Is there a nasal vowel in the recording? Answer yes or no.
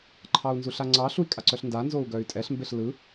no